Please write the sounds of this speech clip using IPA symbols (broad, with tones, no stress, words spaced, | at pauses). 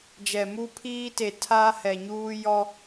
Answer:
d͡ʒɛ˨ mu˦pʰiː˦te˨ tʰaː˦hɛ˨ɲuː˦ jɔ˦